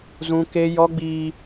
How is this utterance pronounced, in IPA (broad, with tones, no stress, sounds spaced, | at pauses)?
z ũ˦ k e˦ j ɔ˦ ɡ͡b iː˦